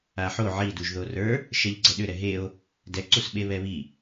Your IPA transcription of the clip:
a ħ o ʕ i d u ʒ ð o r ə˞ | ʃ ɛ ʎ ɡ͡ǀ ɛ ɗ ʏ ɾ ɛ ɦ e o̯ | d ɛ ǀ u s ɓ e β ɛ β i

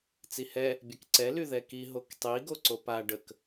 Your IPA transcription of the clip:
t͡s i h ɛ | bʲ ɛ k ǀ ɛ l y ð ɛ k i ɦ o k tˤ i ɡ o ǀ o p a ɖ ə k

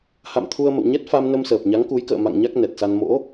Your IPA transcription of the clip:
h a̰˧˨ m t̪ʰ u˧ ə̯ m ə̰˧˨ w ɲ ɛ˦˥ t̚ f a˧ m n ə˧ m s əː˨˩ p̚ ɲ a˨˦ ŋ k u˨˦ j k ə̰ː˧˨ m a̰˧˨ ŋ ɲ a˦˥ k̚ n ɛ˨˩ t̚ s a˧ n m o̰˧˥

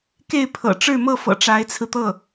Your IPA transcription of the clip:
k e˥˩ ɪ̯ pʰ ɤ̰˨˩ ʈ͡ʂ ɻ̩˥˧ m ɤ˥˩ f ɤ̰˨˩ ʈ͡ʂ a˧˥ ɪ̯ t͡sʰ ɹ̩˧ t̪ ɤ˥˩

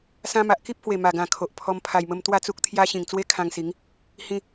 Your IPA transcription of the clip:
s ã˧ m a˨ ʔ k i˦ p̚ h w e˨˩ m a˨˩ ɡ ã˨˩ kʰ o˨ ʔ pʰ ɔ˧ m pʰ a˨˩ j m ə˧ m t̪ w a˥˧ t͡s u˦ k̚ t̪ʰ j a˦ ɕ ĩ˨˩ ŋ t͡s w e˦ kʰ ã˧ ŋ s i˨˦ ŋ | h ĩ˧

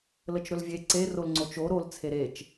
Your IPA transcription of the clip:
l ə t͡ʃ ɾ ɵ l vʲ e ǀ e r o l ŋ͡ǀ o t͡ʃ o ɾ o l t͡sʰ e ɾ e t͡ʃ

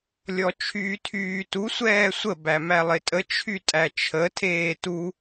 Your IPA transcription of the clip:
lʲ ɔ t͡ʃʰ yː tʰ yː t u sʷ ɛː sʷ ə b æ m æ lˠ ɪ tʼ ə t͡ʃʰ y tʼ æ t͡ʃʰ ə tʰ eː t u

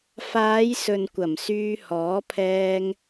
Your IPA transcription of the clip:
f aː˨˧ j s ɵ˨ n kʷ ɐ˨˩ m s yː˧ h ɔː˨˥ pʰ ɛː˧ ŋ

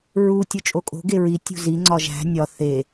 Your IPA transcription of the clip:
ɹ u tʲ o t͡ʃʼ o kʼ o̤ ɡ e ɹ i tʲ ṳ z i ŋ͡ǀ ɒ ʒ æ̤ nʲ ɒ θ e

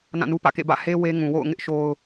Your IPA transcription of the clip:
n ã˦˨ n u˦ p ä̰˦˨ k ḛ˦˨ b ä̰˦˨ h e˦ w e˦ ŋ ũ˨ w o̰˦˨ ʊ̯ ŋ ɪ˦ ʔ ʃ o˦ ʊ̯

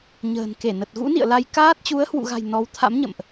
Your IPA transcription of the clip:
ɲ ə̤ː˨˩ n k e˧˩ n ə˨˩ t̚ ɣ ṵ˧˥ n ḭ˧˨ ə̯ l a˧ j k aː˦˥ t̚ t͡ɕ u˨˦ ə̯ h w ṵ˧˨ ɣ a̤˨˩ j n ɔ˨˦ w t̪ʰ a̰˧˥ m ɲ ə̰˧˨ m ʔ

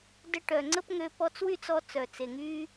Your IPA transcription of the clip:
d ə˧ ʈ œ˨ ŋ͡ǀ ə˦ p ŋ ø˧ p ɔ˧ t͡s w y˦˨ t͡s ɔ˧ t͡s œ˨ t͡s e˨ ŋ y˦

